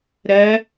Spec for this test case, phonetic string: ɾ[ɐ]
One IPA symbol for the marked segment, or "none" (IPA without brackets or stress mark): ɐ